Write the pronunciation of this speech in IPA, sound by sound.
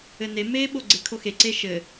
ɘ n e m eː ɓ o ɡ͡ǀ e kʰ o x e ǀ e ʃ ɘ

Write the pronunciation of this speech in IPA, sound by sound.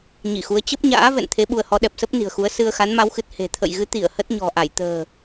ɲ i˧˩ x u˨˦ ə̯ t͡ɕ ə˦˥ p̚ ɲ a̰ː˧˥ v ɛ̰˧˨ n t̪ʰ e˨˦ ɓ u˧ ə̯ h ɔ˨˦ ɗ ɛ˨˩ p̚ s ə˦˥ p̚ n i̤˨˩ ə̯ x u˨˦ ə̯ s ɨ˧ ə̯ x a˨˦ n m a˨˦ w x ɨ˨˩ t̚ h e̤˨˩ t̪ʰ ə̰˧˨ j ɣ ɨ˨˦ t̪ i˧˩ ə̯ h ə˦˥ t̚ ɲ ɔ̤˨˩ ʔ a˧˩ j t̪ ə̤ː˨˩

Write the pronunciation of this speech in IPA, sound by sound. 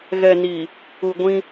ɣ ɛ˨ n i˨ | u˨ ɡʷ ĩ˦

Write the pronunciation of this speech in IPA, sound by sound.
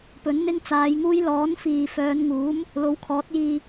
p ɵ˨˥ n n̪ ɪ˥ ŋ t͡s aː˨˧ j ŋ uː˥ j l ɔː˨˥ n f iː˨ f œː˨˧ n ŋ uː˨˥ m | l o˨˥ w kʰ ɔː˨˥ t̚ j iː˧

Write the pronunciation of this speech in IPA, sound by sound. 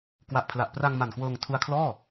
k w a˨˩ ʔ pʰ l a˨˩ ʔ p r a˧ ŋ m a˨˩ n k w ɤː˧ ŋ tʰ u˦˥ a̯ kʰ l ɔː˥˩

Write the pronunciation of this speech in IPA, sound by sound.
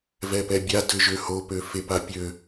v ɛ p ɛ bʲ a d ø ʒ ø h o p ø f e p a pʲ ø

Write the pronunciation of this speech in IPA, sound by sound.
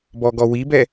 b ɔ ɡ ɔ w i b ɛ

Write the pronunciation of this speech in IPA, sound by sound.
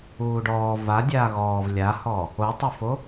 uː ɖ ɔː v a dʲ aː ɣ ɔː v lʲ a h ɔ | o tˤ u f o

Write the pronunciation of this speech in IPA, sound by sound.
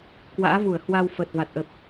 k w a̰ː˧˥ v u˧˩ ə̯ h w a˧ w f əː˨˩ t̚ v a˨˩ t̚ ʔ ə˨˩ p̚

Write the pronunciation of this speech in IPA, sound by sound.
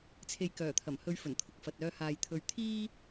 t͡sʰ e˨ j k œː˨˩ t̪ʰ ɐ˨˩ m h ɵ˨˧ ɥ f ɵ˨˩ n t̪ʰ ʊ˨ k̚ f ɐ˨ t̚ œː˧ h aː˨ j t̪ʰ ɵ˧ ɥ t̪ʰ iː˥

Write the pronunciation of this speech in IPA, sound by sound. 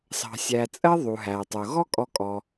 s ɑ̤˨ sʲ æ˨ t͡sʼ ɜ˥ ðˤ u˩ ɦ æ˩ tˤ ʊ˩ ɣ ɔ˦ kʼ ɔ˨ kʼ ɔ˩

